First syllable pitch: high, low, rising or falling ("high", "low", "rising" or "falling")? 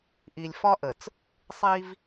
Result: low